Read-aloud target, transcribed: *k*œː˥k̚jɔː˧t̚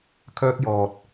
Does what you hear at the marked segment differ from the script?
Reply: yes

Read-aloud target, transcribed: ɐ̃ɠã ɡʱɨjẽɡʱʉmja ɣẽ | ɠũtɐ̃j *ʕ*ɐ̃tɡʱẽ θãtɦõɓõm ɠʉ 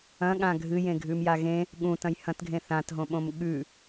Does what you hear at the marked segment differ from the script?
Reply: yes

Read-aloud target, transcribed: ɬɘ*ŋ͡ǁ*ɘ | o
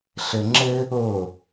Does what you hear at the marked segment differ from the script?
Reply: no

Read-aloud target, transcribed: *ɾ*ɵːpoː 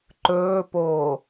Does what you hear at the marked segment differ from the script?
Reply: yes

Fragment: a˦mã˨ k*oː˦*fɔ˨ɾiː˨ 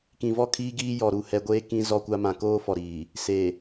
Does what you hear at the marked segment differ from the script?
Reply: no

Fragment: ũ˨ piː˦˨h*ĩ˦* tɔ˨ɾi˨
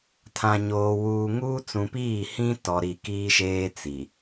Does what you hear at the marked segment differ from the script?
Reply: no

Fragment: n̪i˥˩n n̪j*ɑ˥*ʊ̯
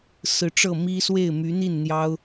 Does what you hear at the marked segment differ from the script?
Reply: no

